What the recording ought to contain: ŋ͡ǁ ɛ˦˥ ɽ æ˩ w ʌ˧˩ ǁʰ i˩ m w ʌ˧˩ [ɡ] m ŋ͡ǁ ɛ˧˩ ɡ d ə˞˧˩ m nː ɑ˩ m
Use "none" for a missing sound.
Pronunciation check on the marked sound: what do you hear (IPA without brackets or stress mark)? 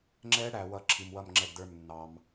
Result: none